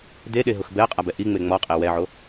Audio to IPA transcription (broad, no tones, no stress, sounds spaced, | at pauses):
d e ɗ e ɦ ʊ x b ɛ ɐ̯ qʼ a b ɛ ʔ i ŋ͡m e ŋ͡m ɔ qʼ e w ɛ ʕ o